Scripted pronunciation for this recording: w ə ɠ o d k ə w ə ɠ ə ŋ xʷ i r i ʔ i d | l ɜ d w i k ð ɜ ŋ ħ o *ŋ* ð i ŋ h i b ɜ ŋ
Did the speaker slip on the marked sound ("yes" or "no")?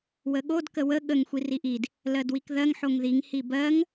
no